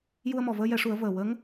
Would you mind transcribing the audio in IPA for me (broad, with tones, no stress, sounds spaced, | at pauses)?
j u˧ ə̯ m ɔ˨˩ v əː˧ j ɛ˨˩˦ ʂ u˨˩˦ ə̯ v əː˨˩ w ə˧˥ ŋ